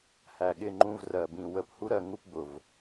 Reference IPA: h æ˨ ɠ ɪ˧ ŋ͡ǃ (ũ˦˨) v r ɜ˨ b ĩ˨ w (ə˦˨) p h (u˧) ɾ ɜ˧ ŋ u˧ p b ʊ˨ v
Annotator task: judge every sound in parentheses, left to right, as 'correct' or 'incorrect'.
incorrect: ũ˧, incorrect: ə˧, incorrect: u˦

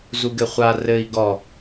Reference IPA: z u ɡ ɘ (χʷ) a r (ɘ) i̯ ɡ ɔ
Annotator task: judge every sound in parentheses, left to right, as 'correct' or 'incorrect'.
correct, correct

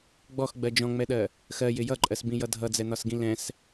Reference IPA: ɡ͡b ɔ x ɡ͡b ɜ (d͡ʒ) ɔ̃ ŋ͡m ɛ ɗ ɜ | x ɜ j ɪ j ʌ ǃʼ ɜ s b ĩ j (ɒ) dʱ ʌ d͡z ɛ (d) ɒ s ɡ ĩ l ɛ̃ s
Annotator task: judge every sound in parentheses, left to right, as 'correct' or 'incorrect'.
correct, incorrect: ʌ, incorrect: n̪

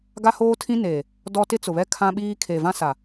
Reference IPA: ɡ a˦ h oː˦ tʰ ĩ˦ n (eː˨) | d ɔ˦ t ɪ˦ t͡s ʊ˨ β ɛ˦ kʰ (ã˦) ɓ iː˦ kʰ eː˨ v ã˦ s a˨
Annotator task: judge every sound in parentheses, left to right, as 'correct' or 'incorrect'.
correct, correct

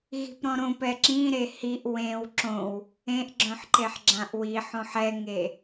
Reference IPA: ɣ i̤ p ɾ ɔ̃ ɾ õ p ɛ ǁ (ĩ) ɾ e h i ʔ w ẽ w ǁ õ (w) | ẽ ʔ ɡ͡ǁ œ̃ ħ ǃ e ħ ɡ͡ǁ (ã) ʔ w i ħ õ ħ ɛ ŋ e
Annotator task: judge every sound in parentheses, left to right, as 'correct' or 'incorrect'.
correct, correct, correct

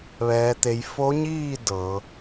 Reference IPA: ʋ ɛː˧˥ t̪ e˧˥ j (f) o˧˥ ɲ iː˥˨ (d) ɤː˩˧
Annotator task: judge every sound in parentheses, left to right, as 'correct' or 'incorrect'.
correct, correct

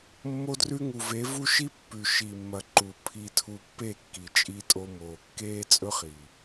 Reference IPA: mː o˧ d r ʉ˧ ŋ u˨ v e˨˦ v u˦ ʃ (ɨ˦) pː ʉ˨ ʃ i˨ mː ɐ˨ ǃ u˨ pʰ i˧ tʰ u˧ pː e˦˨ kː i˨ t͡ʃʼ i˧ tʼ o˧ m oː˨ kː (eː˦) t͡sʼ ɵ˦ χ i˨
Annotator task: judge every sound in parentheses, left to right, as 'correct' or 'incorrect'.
incorrect: i˦, correct

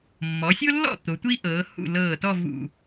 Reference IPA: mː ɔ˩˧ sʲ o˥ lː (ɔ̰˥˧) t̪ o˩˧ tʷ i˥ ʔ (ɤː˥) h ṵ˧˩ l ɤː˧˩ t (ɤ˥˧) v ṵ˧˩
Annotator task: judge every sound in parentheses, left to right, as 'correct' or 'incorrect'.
correct, incorrect: ɤː˩˧, incorrect: ɔ˥˧

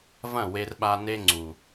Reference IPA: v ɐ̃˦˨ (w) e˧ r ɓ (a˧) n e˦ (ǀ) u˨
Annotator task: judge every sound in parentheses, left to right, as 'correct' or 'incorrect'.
correct, correct, incorrect: ŋ͡ǀ

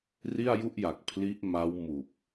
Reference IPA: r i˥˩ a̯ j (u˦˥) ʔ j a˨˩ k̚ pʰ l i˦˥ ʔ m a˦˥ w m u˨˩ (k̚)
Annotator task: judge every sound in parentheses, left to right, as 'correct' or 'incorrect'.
incorrect: u˥˩, correct

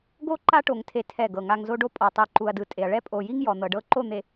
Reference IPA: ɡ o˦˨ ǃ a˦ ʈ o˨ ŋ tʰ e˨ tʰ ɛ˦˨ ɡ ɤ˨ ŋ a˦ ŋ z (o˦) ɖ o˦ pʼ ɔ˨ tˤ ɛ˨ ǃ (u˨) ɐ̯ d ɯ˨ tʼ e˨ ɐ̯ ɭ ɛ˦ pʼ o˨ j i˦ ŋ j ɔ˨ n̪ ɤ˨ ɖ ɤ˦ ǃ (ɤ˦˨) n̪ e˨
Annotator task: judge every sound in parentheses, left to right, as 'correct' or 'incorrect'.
correct, correct, incorrect: o˦˨

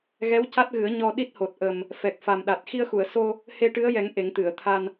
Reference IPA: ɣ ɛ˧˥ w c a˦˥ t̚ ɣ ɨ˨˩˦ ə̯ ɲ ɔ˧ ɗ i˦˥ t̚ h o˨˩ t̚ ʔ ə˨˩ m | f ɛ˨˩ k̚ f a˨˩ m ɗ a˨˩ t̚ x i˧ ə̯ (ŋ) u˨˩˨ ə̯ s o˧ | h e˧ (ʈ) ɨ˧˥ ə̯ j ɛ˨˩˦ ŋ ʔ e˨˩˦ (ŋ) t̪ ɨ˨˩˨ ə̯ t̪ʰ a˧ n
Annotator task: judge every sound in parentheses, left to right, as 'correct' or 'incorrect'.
incorrect: x, correct, correct

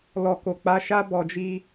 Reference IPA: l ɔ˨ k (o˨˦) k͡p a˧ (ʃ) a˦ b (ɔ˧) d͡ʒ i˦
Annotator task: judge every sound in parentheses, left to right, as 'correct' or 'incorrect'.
incorrect: o˨, correct, correct

